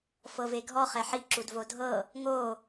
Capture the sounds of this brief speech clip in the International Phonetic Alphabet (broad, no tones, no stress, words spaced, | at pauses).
fɤveɡʱɔ χɛħi ǁudvodʱɤ | ŋo